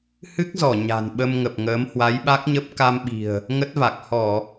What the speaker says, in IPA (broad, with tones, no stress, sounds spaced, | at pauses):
h ɨ˦˥ k̚ z ɔ˧˩ ɲ a̤˨˩ n ɓ ə˧ m ŋ ə˨˩ p̚ ŋ əː˨˦ m h w a˨˦ j ɓ a˦˥ k̚ ɲ ə˦˥ p̚ k a˧ m ɓ i̤˨˩ ə̯ | ŋ ə˦˥ t̚ v a˨˩ k̚ h ɔ˧˩˨